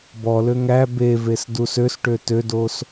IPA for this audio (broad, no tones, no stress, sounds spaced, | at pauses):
b ɔ l ø ŋ æ b e v e s d u s ø s ʈ ø t ø d o s